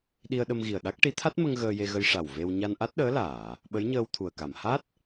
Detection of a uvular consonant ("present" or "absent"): absent